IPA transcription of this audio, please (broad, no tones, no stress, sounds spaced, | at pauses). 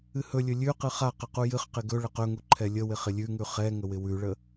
ɨ h ɵ lʲ ɵ lʲ ʉ q ɨ χ a q ə q u j ɨ χ q ɪ ɡ ɵ ɭ ə q ɵ ŋ u ǃʰ ɛ lʲ ə w ɪ χ ɪ lʲ ʉ ŋ ʉ χ ɛ ŋ ə w ɪ w ʉ ɭ ə